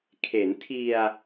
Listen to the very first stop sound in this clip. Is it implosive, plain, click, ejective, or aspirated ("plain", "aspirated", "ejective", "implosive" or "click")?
aspirated